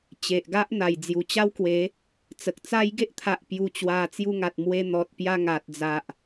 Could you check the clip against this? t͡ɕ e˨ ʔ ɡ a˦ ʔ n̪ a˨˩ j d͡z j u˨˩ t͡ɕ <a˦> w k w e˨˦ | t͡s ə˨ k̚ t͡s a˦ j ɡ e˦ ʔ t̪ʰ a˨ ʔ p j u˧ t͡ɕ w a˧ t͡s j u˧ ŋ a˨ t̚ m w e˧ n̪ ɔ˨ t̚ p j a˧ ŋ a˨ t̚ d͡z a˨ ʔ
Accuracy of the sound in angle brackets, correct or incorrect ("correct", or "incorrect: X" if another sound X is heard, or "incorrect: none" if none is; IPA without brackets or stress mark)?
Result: correct